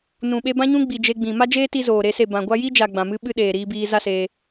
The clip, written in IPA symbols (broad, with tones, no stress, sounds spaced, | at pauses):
n ũ˨ ɓ e˧ b ã˦ ɲ ũ˦ ɡ͡b i˨ d͡ʒ e˧ ɡ͡b ĩ˨ m a˦ d͡ʒ eː˦ t i˧ z oː˨ ɾ e˦ s e˦˨ b ã˨ ɡʷ a˦ j i˦ d͡ʒ a˨ ɡ͡b ã˨ m ɨ˦ ɓ ɨ˦ ɗ eː˨ ɾ iː˧ b iː˧ z a˦ s eː˧